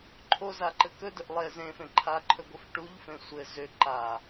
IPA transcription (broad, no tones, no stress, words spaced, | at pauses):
ǃʰozaǃɘ kɵdʏʔ lˠe zẽfẽ ǃʰaǃʰɵɡʷɘf ʈuʎfẽ sʷɘ zʏ ǃa